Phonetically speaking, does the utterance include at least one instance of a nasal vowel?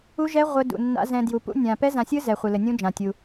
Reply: yes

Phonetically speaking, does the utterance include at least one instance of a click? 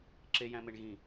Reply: yes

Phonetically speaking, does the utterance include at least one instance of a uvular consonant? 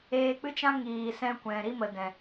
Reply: no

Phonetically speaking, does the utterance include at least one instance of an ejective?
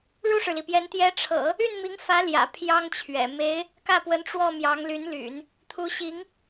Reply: no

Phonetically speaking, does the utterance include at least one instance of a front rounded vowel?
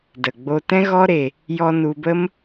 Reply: no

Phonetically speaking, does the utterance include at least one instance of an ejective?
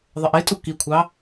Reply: yes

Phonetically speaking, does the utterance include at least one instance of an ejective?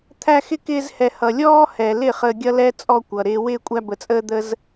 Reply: yes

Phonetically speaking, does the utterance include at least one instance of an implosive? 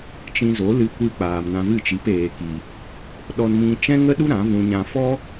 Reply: yes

